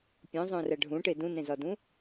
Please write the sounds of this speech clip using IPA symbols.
pʲ õ zˤ õ r æ ɖʱ ũ ʈ e d ũ n ẽ z ɒ d ũ

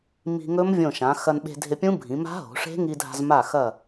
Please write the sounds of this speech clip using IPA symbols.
m i̤˧ ŋ ɵ˦˥ m vʲ õ˧˩ ʃ ã˩˧ x ɐ˧ n ɓ e̤˧ dʱ ɪ˧ pʲ ũ˦˥ bʱ ĩ˩˧ m a̤˦˥ ɦ o̤˩˧ ʂ e̤˦˥ ŋ i˧ dʱ a̤˧ z m a˧˩ x ɐ˧˩

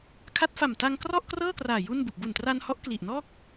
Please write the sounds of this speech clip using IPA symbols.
kʰ a˦˥ t̚ f a˨˩ m t a˧ ŋ k r ɔ˥˩ ʔ k r ɤː˥˩ k r aː˨˩ j u˥˩ n b u˨˩ k̚ b u˨˩ n t r a˧ n h ɔ˦˥ ʔ k l i˨˩ ʔ n ɔː˥˩ k̚

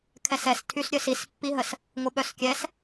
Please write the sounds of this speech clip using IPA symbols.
kʰ ɛ s ɛ s tʰ y s ɾʲ œ s i s pː i ɦ ə s | ŋʷ ə ɓ œ s kʲ ɛ s

